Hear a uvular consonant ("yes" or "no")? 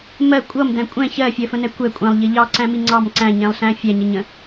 no